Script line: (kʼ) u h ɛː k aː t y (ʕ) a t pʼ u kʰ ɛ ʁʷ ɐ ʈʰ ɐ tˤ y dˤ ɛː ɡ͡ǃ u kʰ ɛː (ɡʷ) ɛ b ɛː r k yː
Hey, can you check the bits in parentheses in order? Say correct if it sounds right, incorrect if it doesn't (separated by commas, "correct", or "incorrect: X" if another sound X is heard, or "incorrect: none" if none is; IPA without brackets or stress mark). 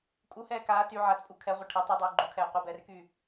correct, correct, incorrect: qʷ